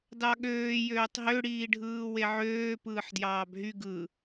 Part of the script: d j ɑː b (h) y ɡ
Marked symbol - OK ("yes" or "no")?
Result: no